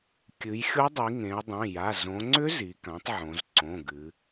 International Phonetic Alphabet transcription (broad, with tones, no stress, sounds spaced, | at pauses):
kʲ ɨ˩˧ j xʲ o˧˥ dˤ i˩˧ ŋ ẽ˩˧ ə̯ dˤ ẽ˩˧˩ j a˩˧˩ z õ˩˧ ŋ͡ǀ ʏ˧˥ z i˩˧ k ã˩˥ tˤ ʕ õ˩˧ z ǀ õ˩˧˩ ɡ ɨ˩˧